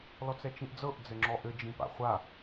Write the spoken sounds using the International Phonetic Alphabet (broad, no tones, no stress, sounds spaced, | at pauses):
l ɔ t͡s ɛ t͡ʃ ĩ ʔ d͡z ɤ ʔ d͡z ɘ ŋ͡ǁ ɔ ʔ ɘ d͡ʒ ĩ p a̰ χʷ a